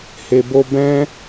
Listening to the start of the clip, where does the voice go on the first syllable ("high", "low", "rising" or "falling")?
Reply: low